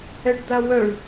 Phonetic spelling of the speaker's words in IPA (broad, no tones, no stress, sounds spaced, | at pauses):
ɛ ɖ d̪ a w œ ɳ